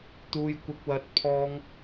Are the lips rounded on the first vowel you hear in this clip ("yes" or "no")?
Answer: yes